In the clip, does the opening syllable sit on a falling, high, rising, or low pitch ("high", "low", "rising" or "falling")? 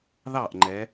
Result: falling